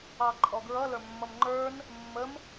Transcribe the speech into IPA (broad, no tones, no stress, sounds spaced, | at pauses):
ɑ ǃʼ ɔ ɡ ɹ ʌ l ə˞ mː ʌ m ŋ͡ǃ ə˞ n | mː ə m